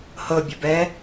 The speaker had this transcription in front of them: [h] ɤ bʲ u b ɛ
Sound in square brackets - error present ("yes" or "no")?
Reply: no